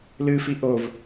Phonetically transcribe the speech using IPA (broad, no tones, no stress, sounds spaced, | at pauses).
l ɨ f i ʔ o v